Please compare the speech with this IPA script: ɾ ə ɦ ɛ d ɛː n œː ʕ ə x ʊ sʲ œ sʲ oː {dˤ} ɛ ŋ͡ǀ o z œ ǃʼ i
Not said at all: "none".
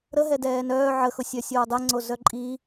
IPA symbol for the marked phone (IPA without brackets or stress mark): dˤ